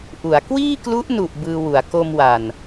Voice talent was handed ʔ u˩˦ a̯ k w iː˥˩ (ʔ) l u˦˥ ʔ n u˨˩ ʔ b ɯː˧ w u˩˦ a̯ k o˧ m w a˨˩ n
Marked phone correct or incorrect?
incorrect